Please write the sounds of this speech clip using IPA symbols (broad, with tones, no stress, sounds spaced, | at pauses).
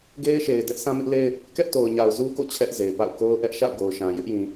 ɡ e˦ ɪ̯ ʃ e˨ ɪ̯ d ɛ˦ ʔ s ã˦ m ɪ˦ ʔ l e˦ ɪ̯ | k ɛ˦ ʔ t o˨ ʊ̯ ɲ a˨ ʊ̯ z u˦ k o̰˦˨ t͡ɕʰ ɛ˦ ʔ z e˨ ɪ̯ p a̰˦˨ ʊ̯ k o˦ ʊ̯ ʔ ɛ˦ ʔ ʃ a̰˦˨ ʊ̯ ɡ o˨ ʊ̯ ʃ ã˨ j ɪ˦ ʔ j ĩ˨